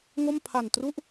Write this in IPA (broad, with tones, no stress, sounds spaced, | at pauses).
ŋ o˥˩ m pʰ a˨˩ n t r u˥˩ ʔ